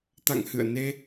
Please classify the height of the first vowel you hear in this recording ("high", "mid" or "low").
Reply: low